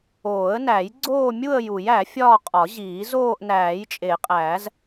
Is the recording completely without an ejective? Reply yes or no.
no